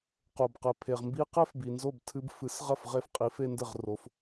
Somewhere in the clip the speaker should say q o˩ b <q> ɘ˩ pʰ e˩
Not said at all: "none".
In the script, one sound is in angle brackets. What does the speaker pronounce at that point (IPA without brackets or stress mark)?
q